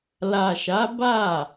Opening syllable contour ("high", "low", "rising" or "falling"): low